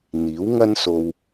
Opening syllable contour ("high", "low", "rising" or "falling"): rising